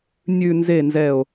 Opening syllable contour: low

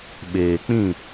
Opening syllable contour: low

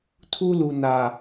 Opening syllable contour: high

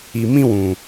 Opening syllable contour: low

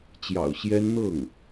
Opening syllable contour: low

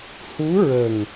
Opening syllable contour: rising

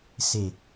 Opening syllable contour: low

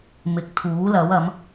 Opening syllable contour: rising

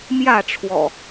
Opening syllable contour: falling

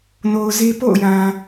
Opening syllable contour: low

